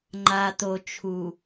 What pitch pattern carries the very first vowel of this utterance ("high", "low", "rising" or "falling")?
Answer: low